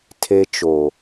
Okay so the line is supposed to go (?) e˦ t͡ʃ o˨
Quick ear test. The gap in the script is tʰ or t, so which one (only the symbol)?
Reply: tʰ